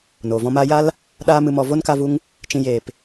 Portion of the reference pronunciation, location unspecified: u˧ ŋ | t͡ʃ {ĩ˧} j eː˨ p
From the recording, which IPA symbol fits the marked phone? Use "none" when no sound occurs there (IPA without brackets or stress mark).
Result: ĩ˧